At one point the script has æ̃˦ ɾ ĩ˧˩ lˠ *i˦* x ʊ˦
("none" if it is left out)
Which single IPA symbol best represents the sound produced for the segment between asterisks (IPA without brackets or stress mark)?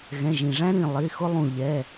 i˩˧˩